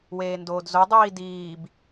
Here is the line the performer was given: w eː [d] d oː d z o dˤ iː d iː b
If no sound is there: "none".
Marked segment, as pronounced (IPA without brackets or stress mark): n